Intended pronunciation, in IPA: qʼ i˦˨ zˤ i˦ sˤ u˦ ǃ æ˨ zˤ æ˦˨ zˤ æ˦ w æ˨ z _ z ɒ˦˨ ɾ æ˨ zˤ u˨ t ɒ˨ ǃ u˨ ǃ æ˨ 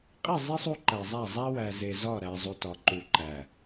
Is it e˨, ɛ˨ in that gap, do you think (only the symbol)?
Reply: e˨